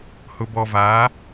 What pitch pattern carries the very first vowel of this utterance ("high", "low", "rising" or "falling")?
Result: low